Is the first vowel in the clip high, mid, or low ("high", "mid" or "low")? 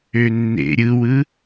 mid